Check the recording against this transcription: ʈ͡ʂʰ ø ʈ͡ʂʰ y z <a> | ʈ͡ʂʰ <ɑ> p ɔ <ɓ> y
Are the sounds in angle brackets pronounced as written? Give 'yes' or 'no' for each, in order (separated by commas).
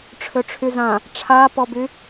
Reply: no, no, no